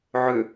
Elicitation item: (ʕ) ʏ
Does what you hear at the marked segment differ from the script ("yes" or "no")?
no